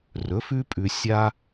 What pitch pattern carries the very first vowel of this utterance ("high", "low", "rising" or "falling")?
rising